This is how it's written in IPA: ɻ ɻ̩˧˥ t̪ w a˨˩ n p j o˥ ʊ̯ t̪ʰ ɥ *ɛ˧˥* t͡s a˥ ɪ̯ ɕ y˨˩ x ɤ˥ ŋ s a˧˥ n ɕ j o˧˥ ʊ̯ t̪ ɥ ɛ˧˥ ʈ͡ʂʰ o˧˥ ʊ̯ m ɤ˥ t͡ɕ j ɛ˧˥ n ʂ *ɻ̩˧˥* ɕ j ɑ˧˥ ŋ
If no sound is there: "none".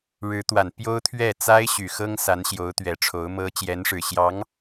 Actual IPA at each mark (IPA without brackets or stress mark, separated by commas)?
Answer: ɛ˥˩, ɻ̩˨˩